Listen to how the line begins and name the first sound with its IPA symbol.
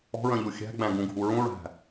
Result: ɔ̤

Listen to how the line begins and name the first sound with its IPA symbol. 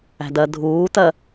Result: æ̤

